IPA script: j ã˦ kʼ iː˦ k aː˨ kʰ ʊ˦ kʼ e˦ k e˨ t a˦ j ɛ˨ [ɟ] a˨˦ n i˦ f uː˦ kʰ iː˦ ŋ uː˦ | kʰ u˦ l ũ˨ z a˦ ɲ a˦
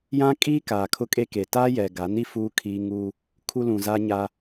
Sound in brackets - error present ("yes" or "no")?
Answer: yes